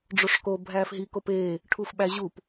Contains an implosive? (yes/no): yes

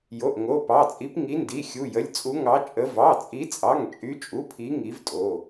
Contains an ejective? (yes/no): yes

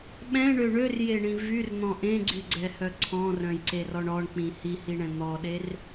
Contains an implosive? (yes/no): yes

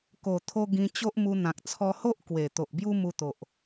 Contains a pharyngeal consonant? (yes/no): no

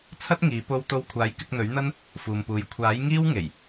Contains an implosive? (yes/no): no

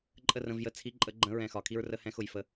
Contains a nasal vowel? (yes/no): yes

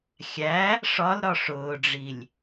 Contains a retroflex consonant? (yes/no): yes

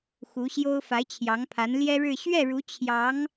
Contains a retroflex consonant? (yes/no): yes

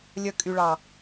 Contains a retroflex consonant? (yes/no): yes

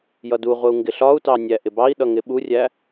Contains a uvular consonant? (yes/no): yes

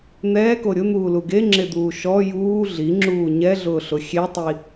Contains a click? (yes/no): yes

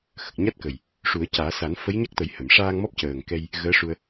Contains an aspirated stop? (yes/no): no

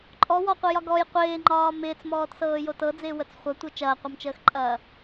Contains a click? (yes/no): yes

